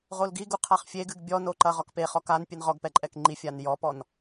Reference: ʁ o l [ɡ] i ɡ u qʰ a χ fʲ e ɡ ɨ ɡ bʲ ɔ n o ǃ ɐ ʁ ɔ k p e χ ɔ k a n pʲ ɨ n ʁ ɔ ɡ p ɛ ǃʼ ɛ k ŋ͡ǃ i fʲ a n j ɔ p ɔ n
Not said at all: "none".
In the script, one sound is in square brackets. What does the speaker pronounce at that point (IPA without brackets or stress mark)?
ɡ